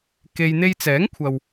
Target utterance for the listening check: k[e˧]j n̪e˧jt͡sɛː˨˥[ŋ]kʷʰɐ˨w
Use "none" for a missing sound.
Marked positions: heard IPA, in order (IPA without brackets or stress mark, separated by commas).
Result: e˧, ŋ